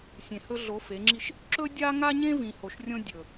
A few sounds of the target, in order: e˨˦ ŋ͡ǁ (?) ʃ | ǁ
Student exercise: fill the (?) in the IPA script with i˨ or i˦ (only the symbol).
i˦